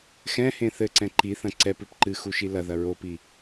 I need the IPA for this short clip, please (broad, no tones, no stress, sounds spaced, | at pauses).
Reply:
x ɛ̃ h ẽ θ ɘ ǀ ɛ̃ ǃ i θ ɐ̃ ǀ ɛ p ɨ p ǃ ɨ x u ʃ i l ɐ ð ɐ ɹ o p i